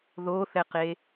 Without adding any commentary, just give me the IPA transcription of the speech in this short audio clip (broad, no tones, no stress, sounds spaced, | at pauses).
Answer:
ð o θ ɛ q e